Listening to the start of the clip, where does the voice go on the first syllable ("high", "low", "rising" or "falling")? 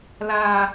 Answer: low